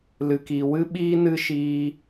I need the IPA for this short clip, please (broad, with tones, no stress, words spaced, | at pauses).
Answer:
lɨ˧kiː˧ wɨ˦ɓiː˦nɨ˦ ʃiː˦